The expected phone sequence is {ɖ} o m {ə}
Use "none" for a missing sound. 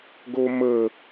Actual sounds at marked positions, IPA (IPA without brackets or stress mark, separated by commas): ɡ, ə